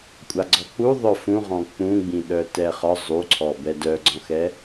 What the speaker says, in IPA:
kʷʼ a ɡ͡ǀ ɔ k͡p u ðˤ œ f ũ ʁ ɔ̃ k͡p ũ ɡ͡b ĩ ɗ œ t ɛ χ ɒ zˤ u ǀʰ ɔ b ɛ d œ ɡ͡ǀ ɔ̃ x ɛ

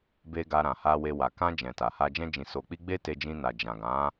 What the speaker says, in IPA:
b e˧ ɡ a˧ ɾ ã˨ h a˧ w e˧ w a˨ k ã˧ d͡ʒ ɛ̃˨ t a˨ h a˧ d͡ʒ ɛ̃˧ d͡ʒ ĩ˨ s o˨ k͡p i˧ ɡ͡b e˦ t e˧ d͡ʒ ĩ˧ n a˨ d͡ʒ ã˨ ɡ ã˨˦

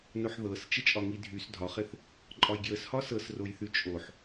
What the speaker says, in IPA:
n o ħ ð ɤ s t͡ʃ ɪ t͡ʃʼ ɒ ŋ i dʱ y s dʱ ɒ χ ɪ θ | ǃʼ ɒ j ɡ j ə s h ɒ s ɤ s r o j θ y t͡ʃʼ o ħ

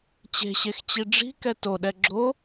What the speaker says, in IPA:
t͡ɕ e̤ ɕ e x t͡ɕ i ɖ͡ʐ i̤ k ɛ t o ɗ ɛ ɡ͡ǁ o

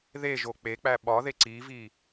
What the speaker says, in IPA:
ð e ʒ o k͡p e k͡p æ ɓ ɒ ð e ǀ i v i

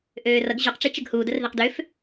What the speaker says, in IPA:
ʔ øː r ʌ ɡ ʑ u q ʈ͡ʂ i t͡ʃ ə ɡ h uː d ə r ð ɛ q d ø f

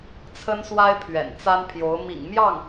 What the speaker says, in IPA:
t͡sʰ ə˥ n s w a˥ ɪ̯ pʰ ɥ ɛ̰˨˩ n t͡s a˥ n pʰ j o˧˥ ʊ̯ m ḭ˨˩ ŋ m j ɑ˥˩ ŋ

